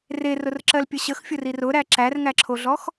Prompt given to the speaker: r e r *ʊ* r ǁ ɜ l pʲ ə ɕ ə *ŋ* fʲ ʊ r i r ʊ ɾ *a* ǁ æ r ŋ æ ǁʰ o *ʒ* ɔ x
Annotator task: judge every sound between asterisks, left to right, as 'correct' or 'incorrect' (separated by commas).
correct, incorrect, incorrect, incorrect